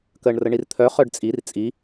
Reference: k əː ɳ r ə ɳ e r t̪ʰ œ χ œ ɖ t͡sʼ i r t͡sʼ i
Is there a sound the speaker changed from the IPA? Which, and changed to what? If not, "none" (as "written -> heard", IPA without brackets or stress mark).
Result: e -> i